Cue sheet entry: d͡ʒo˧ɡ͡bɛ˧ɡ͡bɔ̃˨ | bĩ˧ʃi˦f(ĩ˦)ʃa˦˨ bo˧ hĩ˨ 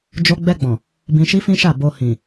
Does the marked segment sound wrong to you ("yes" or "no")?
no